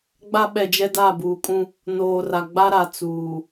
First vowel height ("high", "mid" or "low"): low